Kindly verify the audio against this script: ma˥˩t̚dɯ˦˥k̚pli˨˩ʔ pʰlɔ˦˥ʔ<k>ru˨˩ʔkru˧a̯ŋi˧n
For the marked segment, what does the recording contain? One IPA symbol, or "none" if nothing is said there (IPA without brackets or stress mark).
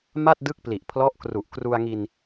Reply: k